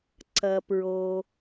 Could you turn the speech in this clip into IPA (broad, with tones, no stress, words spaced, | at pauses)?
ǀɐ˩pɹo˩